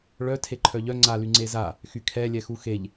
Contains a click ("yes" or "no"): yes